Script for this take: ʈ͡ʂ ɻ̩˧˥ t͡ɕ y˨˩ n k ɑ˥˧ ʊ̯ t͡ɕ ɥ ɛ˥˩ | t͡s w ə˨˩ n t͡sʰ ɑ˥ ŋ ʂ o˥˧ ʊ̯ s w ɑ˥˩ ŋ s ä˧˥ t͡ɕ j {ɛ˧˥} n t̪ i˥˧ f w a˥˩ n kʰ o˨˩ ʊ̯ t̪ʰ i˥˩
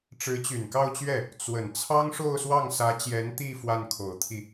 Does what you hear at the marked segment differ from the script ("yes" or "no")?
no